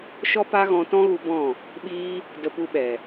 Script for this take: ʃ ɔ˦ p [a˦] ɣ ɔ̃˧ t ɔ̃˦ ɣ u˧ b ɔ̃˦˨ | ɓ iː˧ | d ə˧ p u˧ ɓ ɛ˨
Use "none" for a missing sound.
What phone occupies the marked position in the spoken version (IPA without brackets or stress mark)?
a˦